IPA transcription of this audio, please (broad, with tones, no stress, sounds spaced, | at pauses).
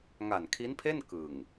ŋ a˨˩ n kʰ i˦˥ n pʰ e˥˩ n k ɯ˨˩ ŋ